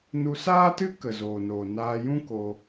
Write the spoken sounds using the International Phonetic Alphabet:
nu˧saː˦tɨ˦ kə˨zoː˨noː˨ naː˧jũ˦ko˧

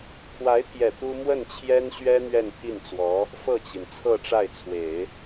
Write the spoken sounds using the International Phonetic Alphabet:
kʰwa˧˥ɪ̯t̪ʰjɛ˨˩ t̪u˥ mwə˥˩nt͡ɕʰjɛ˥nɕɥɛ˥ n̪ɥɛ˥˧nt̪ʰi˥˩nt͡swɔ˧˥ | fɤ˥˩t͡ɕi˩n t͡sʰɤ˥˧ʈ͡ʂa˥˩ɪ̯t͡sʰwe˨˩˦ɪ̯

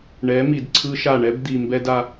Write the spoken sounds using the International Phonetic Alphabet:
ɳɛ˨˦mi˨dǀʰɯ˦ʃa˦˨ ɳɛ˦bd̪i˨mbɛ˦d a˦

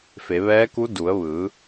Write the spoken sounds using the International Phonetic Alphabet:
fe˩˧ ʋɛː˧˥ku˧˥ du˩˧ə̯ʋɯː˩˧

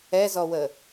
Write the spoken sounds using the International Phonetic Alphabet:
ɛzɔwə

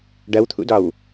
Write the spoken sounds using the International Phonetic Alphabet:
ɖɐwt̪ʰṵdɒw

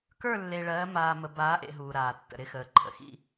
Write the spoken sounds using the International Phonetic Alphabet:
kə˞˦˨lːe˨ɭɜː˨˦ maː˨mə˨ baː˨˦ʔḛ˨ ɦuː˨ɾaː˨tːə̰˨ ɾɪ˦xəː˨ ǃʰə̰˨xḭ˦

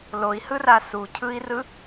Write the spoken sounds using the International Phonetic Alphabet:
loi̯hɯra sucʰɯi̯rɯ

